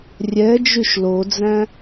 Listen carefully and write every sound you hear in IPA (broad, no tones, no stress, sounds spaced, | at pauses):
rʲ ɛ d͡ʒ y ʃ l o d͡z æ̃